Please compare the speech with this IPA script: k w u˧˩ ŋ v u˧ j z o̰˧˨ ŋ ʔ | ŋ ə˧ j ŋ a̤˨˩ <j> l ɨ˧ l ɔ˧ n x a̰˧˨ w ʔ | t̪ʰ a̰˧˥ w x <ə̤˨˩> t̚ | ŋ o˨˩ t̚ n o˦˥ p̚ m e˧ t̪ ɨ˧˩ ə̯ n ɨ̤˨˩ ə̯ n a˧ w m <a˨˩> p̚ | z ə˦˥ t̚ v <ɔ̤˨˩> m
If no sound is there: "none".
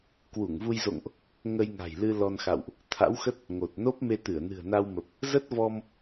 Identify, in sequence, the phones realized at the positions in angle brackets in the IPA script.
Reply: j, ə˦˥, ə˨˩, ɔ˧

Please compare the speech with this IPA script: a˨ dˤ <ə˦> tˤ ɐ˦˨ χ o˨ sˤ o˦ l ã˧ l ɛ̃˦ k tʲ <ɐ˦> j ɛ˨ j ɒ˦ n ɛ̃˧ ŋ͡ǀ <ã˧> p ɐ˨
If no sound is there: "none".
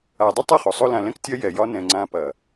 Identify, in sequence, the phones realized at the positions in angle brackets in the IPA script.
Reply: ə˦, ɐ˦, ã˧

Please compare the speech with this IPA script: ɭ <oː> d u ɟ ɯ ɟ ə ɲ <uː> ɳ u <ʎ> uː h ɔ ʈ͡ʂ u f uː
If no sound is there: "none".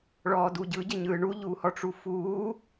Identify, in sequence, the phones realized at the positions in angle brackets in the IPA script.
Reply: ɔː, ɯː, ʎ

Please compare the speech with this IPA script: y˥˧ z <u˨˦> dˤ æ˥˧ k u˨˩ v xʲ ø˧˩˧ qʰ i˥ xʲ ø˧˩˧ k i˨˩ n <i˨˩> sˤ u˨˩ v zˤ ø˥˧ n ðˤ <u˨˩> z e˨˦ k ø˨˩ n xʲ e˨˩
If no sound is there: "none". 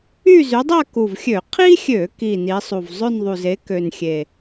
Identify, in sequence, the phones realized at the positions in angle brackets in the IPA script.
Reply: y˨˦, i˨˦, u˨˩

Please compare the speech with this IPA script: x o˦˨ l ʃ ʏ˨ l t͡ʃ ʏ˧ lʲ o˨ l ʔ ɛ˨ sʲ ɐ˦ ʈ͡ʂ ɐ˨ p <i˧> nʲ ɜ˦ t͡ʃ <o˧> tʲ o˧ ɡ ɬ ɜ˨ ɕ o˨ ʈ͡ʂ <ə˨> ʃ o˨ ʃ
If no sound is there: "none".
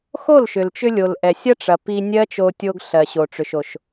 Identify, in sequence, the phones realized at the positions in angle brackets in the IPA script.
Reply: i˧, o˧, ʏ˨

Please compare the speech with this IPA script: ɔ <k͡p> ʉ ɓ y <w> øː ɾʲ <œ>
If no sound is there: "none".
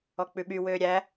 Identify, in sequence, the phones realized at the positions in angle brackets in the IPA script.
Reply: k͡p, w, æ

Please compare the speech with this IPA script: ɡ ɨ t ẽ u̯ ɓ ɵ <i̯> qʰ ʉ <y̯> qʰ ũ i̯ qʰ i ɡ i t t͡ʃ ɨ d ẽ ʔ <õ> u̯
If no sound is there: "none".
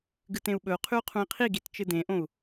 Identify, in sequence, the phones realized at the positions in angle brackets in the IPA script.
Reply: u̯, u̯, õ

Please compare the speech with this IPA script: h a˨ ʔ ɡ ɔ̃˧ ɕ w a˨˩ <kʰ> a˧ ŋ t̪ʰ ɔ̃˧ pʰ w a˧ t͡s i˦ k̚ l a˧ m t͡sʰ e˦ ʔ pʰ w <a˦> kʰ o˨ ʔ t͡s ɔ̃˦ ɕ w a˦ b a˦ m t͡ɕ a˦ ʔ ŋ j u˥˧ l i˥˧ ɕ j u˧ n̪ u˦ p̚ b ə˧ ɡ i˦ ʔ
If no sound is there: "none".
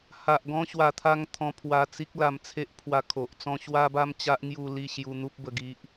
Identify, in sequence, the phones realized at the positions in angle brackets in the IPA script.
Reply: t̪ʰ, a˧

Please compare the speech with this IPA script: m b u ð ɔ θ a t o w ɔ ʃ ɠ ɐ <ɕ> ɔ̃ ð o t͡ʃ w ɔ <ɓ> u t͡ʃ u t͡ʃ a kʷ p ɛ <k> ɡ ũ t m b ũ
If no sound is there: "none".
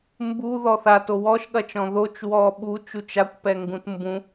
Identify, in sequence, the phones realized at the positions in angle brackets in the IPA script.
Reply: t͡ʃ, ɓ, ŋ

